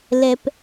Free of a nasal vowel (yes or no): yes